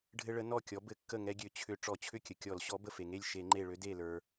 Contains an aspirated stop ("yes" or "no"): yes